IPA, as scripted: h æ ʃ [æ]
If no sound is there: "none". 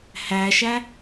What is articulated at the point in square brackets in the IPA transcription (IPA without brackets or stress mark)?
æ